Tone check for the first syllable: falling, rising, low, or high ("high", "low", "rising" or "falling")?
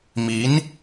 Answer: rising